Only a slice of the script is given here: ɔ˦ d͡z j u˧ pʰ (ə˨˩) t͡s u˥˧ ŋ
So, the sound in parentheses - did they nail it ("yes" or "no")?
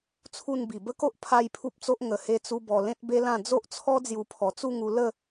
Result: no